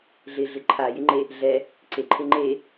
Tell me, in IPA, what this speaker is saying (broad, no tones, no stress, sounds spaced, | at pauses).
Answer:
ɮ ɪ ɮ ɪ ǃʰ a j ɪ ŋ͡ǃ e | ɮ ɛ | ǀ e ǃʰ e ŋ͡ǃ e